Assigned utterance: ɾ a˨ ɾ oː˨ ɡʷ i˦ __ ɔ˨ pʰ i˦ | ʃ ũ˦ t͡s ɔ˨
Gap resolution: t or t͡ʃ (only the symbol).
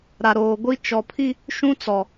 t͡ʃ